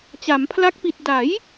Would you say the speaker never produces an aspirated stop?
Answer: no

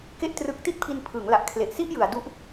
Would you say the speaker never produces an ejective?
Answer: yes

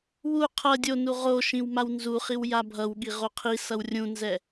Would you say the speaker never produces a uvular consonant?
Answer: no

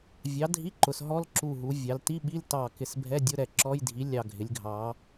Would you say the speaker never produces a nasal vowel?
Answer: yes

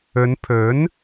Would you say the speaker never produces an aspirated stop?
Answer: no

